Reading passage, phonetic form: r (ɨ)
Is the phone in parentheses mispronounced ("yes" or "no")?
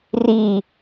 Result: yes